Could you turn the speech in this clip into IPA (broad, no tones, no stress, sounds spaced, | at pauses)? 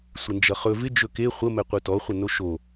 sʷ ɪ n d͡ʒ ʌ χ ɵ v ɪ d͡ʒ ɵ k e χʷ ə m ɛ qʷ ɯ t ɔ χʷ ə n o ʃ o